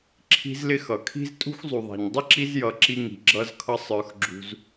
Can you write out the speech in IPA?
ǁʰ i̤˦ z l ɪ˦ x ʌ˩ kʰ i̤˥ z tʼ ṳ˥ x zˤ u˨ ðˤ æ̤˨ ɲ dˤ ɪ˥ ǁ i˦ z j ʌ˨ ǁ i˦ ŋ i̤˩ ɡ͡ǁ ʌ˦ z kʰ ʌ˦ sˤ ə˞˨ x ɡ͡ǁ ṳ˨ z

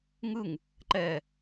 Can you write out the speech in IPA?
ŋ ɯ ŋ | ǃ ɛ

